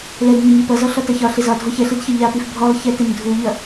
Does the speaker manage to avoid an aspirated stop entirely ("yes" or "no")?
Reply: yes